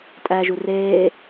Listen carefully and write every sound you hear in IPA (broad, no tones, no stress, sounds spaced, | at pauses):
tʼ æ ʒ u r eː